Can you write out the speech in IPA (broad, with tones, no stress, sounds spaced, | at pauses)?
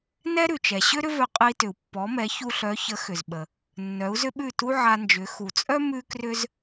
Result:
n ɛ˥ ɾ ʉ˩ t͡ʃ ɛ˩ ɕ ʏ˥ ɾ ʏ˥ v œ˧ qʼ ə˧ i̯ t ʏ˩ u̯ pː ɔ˩˥ m ɛ˩˥ ç u˧ ɬ œ˩˥ ç ə˩˥ x ʏ˩ z ɓ ə˩ | nː œ˩˥ u̯ z ʏ˥ ɓ ʉ˥˩ t u˥ ʕ a˧ n d͡ʒ ʏ˩˥ x u˩ t͡sʼ œ˥ m ʉ˥ k r ʏ˥ z